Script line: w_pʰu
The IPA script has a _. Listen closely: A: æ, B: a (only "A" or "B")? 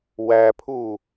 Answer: A